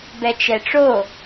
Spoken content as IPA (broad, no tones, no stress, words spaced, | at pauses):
bɛt͡ʃɛʈ͡ʂo